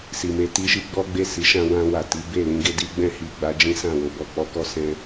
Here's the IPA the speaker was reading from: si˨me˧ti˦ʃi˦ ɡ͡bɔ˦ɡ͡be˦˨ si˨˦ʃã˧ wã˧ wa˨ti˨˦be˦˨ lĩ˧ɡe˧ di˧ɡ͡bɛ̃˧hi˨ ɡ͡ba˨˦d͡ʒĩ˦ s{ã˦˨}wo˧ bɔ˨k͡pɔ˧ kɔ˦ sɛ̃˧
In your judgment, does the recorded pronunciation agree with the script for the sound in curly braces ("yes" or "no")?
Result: yes